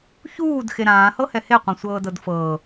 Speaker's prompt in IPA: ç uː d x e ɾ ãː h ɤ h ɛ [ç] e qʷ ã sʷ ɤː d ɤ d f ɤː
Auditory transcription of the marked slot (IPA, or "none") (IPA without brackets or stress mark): h